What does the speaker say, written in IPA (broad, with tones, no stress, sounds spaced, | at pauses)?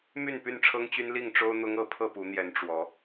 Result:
m y˥˨ n p y˥˨ n ʈ͡ʂʰ ɤ˦ ŋ t͡ɕ y˦ n l i˥˨ ŋ ʈ͡ʂ o˦ ʊ̯ n̪ ʊ˦ ŋ ɤ˥˨ pʰ ɤ˥˨ p u˨˦ n̪ j ɛ˨˦ n ʈ͡ʂ w ɔ˨˦